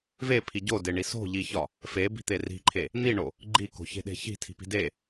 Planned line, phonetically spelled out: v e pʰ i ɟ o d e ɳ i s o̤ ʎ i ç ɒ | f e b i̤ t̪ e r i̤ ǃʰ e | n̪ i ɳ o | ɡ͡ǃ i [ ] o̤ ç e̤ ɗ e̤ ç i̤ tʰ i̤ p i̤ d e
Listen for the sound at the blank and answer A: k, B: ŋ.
A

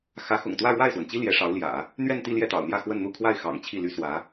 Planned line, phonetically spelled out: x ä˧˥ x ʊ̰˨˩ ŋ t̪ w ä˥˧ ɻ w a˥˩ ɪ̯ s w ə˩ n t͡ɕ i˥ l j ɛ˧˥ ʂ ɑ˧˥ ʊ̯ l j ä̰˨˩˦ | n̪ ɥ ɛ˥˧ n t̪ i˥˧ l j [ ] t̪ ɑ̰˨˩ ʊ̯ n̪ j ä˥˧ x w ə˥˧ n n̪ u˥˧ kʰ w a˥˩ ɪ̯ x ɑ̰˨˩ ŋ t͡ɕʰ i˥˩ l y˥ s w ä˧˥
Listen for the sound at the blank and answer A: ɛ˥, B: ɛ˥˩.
B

